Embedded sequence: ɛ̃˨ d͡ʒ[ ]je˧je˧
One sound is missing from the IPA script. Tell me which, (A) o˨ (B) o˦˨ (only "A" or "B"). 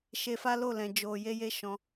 A